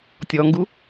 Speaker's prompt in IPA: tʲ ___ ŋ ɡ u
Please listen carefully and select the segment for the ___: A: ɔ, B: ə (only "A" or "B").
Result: A